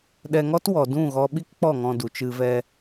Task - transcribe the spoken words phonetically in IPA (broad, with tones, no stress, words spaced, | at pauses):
ɗɛ˧ŋɔ˦twɔ˨ dũ˦˨ɣɔ˧ ɓi˦kk͡pɔ˦˨ŋɔ̃˧ du˨t͡ʃɨ˧vɛ˧